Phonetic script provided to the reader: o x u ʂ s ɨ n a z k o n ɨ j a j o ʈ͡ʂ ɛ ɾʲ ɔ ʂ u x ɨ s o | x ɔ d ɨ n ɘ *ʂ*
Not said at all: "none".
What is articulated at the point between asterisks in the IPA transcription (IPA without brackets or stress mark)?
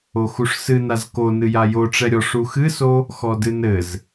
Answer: z